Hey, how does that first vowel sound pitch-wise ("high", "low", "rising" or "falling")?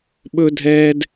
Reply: high